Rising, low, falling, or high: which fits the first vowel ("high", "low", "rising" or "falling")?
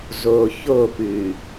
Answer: low